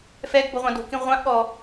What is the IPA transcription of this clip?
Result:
f ɛ ɡ b o ʁʷ ɑ̃ d o̤ k ĩ ʁʷ ã ʔ ɠ ɔ

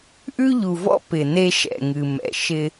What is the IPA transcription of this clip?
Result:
ʔ ʉ˦ ʎ u˨ v ɔ̰˦ p ɪ˨ n e˦ ʃ ɛ̰˨ ŋ ɨ˨ m ɛ̰˨ ʃ ɪ˦

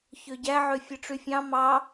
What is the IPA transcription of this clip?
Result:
ç ø ɟ æ ʕ ø fʲ ɯ ʈ͡ʂ y fʲ ɑ̃ m ɑ

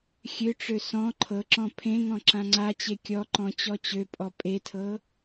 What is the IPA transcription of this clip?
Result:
xʲ ø ʈ͡ʂ ø s ɔ̃ ǃʰ ɤ ǁ ɔ̃ pʰ ẽ ŋ ɔ̃ ǁ ã ŋ͡ǀ a t͡ɕ e kʲ ɔ ǃ ɔ̃ t͡ɕ ɔ t͡ɕ ø pʼ ɔ pʼ e tʰ ɤ

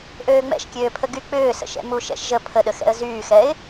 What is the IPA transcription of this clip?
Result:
ʔ øː ŋ͡m ɛ̰ ʃ kʲ øː pʰ ə ɡ y k͡p ʏː s ə̰ ʃ ɛ̰ m u ʃ ɛ̰ ʃ ʒ ə pʰ ə ɗ ə x ɛ̰ ə̯ z yː x ɛ ɪ̯

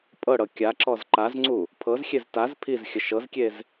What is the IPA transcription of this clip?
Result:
pʼ ɤ ɽ ɤ kʲ a ǁ ɔ z ǃ a z ŋ͡ǀ u | pʰ ɤ z xʲ e z t a z pʰ i z xʲ ə ʃ ɤ z kʲ e z

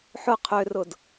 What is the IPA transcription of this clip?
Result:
ħ ʊ qʰ ø r ʊ d

